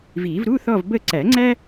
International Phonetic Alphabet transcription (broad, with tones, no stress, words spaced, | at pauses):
vi˨˩˦v ɾu˧˥˧θɔ˦˨v bə˦˨ǀæ˨˩˦ŋ͡ǀæ˥